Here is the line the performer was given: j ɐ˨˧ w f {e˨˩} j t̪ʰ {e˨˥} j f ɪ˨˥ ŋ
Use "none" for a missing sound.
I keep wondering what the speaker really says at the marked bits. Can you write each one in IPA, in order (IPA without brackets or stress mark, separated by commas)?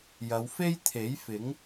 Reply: e˥, e˨˥